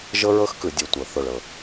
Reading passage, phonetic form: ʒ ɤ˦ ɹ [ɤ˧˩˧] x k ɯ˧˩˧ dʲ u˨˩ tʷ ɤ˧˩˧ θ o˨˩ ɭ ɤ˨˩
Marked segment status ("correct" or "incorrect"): incorrect